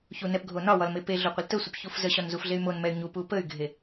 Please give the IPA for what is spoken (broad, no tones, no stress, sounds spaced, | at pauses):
ç u n ɛ p ɡʱ o n ɒ w ɒ l m e p e ɮ o qʷ ə l t ə sʷ ə p ç u f z ə ɕ ɒ n z u f ɮ e y̯ m o n m ɛ y̯ ɲ u p u p ə y̯ ɡʱ e